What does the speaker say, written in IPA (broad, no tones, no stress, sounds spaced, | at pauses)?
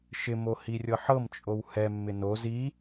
ʃ ɪ m o h i rʲ ɤ ħ ɤ m t͡ʃʼ o w h ɛ mː ɪ n o z i